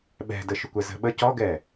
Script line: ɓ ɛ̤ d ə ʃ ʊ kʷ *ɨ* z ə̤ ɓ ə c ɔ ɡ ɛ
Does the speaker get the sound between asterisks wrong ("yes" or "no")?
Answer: yes